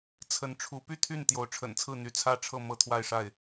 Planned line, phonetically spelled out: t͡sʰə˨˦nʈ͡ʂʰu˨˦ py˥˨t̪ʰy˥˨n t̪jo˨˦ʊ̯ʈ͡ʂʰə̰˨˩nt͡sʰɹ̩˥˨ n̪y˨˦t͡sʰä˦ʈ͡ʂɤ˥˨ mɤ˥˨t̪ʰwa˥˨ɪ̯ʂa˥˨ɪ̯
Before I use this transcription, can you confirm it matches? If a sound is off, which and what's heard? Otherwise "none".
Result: ʈ͡ʂ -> ʈ͡ʂʰ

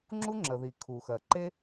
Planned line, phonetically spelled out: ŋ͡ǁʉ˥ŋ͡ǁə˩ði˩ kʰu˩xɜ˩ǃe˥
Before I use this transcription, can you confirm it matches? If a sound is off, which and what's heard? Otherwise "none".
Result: ʉ˥ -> u˥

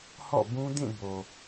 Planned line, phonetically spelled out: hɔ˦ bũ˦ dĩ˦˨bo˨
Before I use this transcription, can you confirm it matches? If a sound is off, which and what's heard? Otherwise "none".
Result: ɔ˦ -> ɔ̰˦˨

